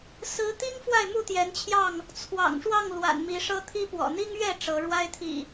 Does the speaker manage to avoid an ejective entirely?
yes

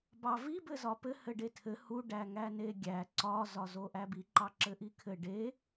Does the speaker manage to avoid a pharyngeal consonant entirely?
yes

